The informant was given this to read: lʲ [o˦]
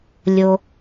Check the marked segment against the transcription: correct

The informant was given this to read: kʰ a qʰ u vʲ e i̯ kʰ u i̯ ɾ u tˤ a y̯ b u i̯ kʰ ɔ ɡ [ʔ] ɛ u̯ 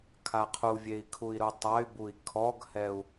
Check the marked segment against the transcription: incorrect: h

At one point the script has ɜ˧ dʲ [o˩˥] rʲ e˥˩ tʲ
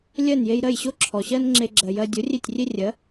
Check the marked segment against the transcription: correct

